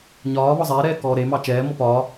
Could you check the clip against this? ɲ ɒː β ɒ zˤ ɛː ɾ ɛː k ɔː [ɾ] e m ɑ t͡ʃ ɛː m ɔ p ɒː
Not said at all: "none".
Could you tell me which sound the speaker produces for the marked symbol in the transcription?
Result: ɾ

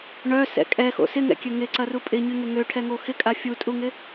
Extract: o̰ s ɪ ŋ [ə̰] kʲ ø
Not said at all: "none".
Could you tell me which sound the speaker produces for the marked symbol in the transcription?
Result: ɛ̰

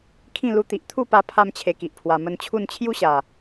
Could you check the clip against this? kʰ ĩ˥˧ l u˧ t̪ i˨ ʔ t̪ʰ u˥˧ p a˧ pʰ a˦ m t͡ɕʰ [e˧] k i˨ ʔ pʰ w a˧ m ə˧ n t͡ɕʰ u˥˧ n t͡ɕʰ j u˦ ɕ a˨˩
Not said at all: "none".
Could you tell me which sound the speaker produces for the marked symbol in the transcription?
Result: e˧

